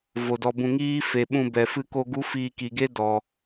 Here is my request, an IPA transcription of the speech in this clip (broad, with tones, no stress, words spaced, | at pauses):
vo˨dɔ˧bũ˧ŋiː˦ fe˨ɓũ˧bɛ˨ fɨ˧ko˧ ɡu˦fiː˧ki˨ɡe˦ dɔ˨